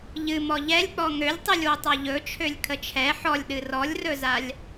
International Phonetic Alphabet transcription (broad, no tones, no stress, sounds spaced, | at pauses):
ʎ ɨ m ɔ ʎ ɛ lʲ k͡p ɔ ŋ ø lʲ tˤ ɨ lʲ w ɵ tˤ a ʎ ɵ t͡ʃʰ ø lʲ kʰ ə t͡ʃʰ ɛ ħ ɔ lʲ ɗ ɨ r ɔ lʲ r ɵ z a lʲ